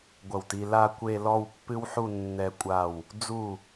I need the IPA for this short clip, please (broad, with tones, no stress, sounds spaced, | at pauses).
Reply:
ɡʷ ɐ˧˩ w t i˧ l a˥˧ kʷ e˥˧ l ɔ˥˧ w pː ɨ˥ w ħ u˥˧ nː ɛ˧ kʷʼ a˧˩ w | d͡z u˧˩